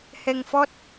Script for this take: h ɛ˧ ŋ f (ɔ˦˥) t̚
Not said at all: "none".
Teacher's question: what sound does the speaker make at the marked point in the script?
ɔ˦˥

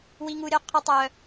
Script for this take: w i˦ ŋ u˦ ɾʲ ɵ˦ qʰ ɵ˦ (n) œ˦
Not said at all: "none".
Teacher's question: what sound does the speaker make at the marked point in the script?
tˤ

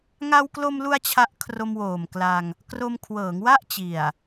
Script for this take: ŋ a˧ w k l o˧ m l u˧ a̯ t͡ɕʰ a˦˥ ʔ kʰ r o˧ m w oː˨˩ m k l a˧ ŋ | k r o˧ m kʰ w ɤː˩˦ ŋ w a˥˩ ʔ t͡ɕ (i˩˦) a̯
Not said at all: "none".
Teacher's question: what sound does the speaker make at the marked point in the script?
i˨˩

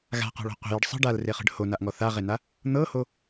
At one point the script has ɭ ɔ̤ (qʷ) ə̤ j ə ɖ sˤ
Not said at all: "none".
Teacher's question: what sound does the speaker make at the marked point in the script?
qʷ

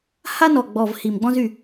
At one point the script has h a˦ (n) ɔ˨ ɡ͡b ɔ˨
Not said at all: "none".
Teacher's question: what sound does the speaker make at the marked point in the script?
n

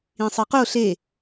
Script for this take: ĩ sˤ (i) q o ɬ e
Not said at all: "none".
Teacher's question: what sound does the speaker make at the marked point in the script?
i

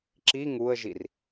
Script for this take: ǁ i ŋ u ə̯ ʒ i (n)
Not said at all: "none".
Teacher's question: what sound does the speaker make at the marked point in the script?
r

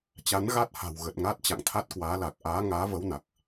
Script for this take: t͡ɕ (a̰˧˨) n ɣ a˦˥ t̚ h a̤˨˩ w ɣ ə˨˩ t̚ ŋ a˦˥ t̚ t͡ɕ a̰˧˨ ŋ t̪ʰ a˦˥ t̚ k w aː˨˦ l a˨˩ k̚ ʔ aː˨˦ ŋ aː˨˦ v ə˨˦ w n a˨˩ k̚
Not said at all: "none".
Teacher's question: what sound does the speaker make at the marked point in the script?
a˨˦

